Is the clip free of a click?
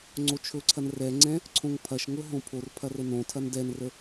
no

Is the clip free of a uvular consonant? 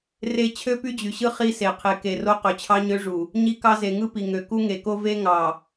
no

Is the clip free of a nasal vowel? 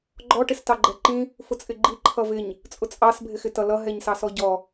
no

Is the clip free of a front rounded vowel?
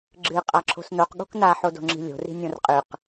yes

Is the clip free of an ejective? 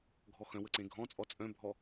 no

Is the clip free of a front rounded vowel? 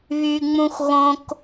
no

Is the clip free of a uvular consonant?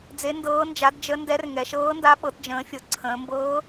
yes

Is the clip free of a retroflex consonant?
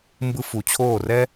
yes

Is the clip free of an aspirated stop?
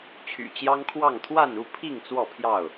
no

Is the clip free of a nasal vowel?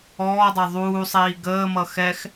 yes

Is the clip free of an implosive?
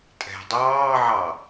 yes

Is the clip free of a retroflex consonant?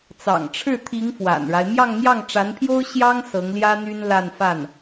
no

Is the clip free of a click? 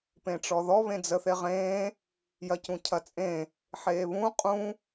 yes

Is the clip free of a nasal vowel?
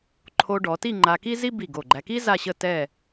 yes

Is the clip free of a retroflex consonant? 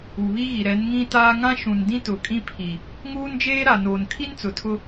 yes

